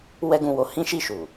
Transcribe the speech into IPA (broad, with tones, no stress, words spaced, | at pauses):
wɛ˦ɡũ˧wo˧ hĩ˦ʃi˦˨ʃu˨